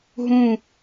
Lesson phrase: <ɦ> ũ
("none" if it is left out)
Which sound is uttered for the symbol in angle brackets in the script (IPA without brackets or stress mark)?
ɦ